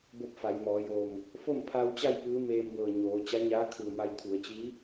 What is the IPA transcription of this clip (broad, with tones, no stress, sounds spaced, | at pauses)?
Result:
b o˥˨ p̚ f a˩˧ j m ɔː˩˧ j o˧˩ ŋ | f o˥˨ m pʰ a˧ w t͡ɕ a˥˨ j p ɯː˧˥ m eː˧ m b ɤː˧˩ ɲ oː˩˧ t͡ɕ a˧˥ ɲ aː˧˥ kʰ ɯː˧˩ m a˧ j t̪ʰ u˩˧ ə̯ t͡ɕ i˧˥